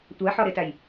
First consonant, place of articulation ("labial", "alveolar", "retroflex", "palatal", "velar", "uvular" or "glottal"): alveolar